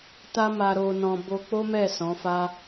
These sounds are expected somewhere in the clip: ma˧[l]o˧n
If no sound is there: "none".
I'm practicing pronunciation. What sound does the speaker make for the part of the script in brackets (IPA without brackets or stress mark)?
ɾ